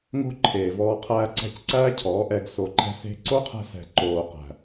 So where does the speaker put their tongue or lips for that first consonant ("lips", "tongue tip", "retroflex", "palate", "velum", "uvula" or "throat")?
velum